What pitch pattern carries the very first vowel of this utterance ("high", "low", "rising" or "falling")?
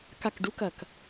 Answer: low